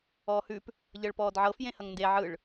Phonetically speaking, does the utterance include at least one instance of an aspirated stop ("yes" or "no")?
no